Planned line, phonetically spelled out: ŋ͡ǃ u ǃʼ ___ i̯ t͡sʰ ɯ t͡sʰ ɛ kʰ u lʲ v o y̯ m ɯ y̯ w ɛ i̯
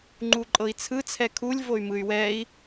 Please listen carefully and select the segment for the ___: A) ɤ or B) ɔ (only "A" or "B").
A